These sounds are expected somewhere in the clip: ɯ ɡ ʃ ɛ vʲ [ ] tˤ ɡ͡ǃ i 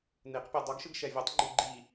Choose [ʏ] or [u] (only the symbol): u